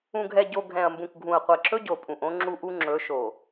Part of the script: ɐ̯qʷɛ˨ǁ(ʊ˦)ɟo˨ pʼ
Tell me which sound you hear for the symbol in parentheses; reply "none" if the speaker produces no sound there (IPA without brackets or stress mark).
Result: ɵ˦